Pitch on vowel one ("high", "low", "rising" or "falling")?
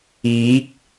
rising